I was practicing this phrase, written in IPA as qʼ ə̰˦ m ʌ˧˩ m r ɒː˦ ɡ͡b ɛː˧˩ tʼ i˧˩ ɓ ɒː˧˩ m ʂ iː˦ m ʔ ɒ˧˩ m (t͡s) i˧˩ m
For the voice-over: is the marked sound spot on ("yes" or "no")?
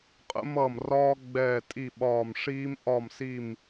no